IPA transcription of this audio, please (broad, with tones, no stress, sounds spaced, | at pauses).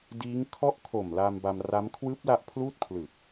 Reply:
d iː˦˥ ŋ kʰ ɔ˦˥ ʔ kʰ o˨˩ m l aː˧ m b a˧ m r a˦˥ m kʰ w ɯː˦˥ p̚ l a˦˥ ʔ pʰ l uː˥˩ t̚ pʰ l ɯ˨˩ k̚